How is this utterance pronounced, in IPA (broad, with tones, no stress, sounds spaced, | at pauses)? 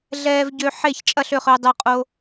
ɮ ɛː˧ v ɟ ø˧ ħ e˥˨ ç t͡ʃʼ ɐ˥˨ ɬ ø˥˨ χ ʏ˧ ə̯ dˤ ø˧ qʼ o˧